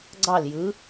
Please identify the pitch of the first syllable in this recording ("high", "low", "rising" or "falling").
falling